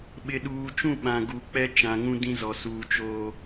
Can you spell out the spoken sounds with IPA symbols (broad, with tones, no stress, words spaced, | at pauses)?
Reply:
ɓɪ˨ɗuː˨t͡ʃũ˦˨ ɓã˨ɡu˨k͡pɛ˦ t͡ʃã˨ŋũ˦ dĩ˦zɔ˨ suː˨ t͡ʃoː˦